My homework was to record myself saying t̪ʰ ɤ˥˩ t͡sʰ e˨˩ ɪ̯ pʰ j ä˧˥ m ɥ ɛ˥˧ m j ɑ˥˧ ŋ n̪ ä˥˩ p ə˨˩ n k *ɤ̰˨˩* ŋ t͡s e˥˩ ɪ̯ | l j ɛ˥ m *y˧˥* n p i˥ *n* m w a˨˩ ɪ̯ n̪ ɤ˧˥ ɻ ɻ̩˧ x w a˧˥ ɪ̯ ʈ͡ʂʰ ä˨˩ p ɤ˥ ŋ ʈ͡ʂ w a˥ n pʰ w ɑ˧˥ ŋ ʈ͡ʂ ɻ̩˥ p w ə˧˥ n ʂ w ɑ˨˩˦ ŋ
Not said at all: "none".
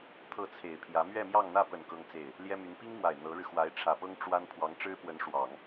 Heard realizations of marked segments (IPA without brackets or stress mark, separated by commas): ɤ˥, y˧˥, ŋ